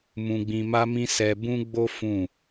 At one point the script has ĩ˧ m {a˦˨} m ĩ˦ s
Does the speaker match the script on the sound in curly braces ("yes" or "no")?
no